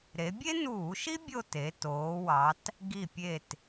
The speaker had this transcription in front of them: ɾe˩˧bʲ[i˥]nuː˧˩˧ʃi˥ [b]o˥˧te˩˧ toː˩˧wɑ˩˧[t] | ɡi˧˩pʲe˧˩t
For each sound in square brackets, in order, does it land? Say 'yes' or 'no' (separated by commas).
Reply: no, no, yes